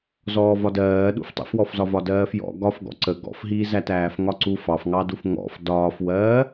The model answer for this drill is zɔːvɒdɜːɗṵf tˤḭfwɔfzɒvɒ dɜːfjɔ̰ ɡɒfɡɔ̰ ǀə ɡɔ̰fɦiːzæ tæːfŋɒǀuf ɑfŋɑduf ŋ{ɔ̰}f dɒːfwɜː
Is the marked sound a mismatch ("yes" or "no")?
no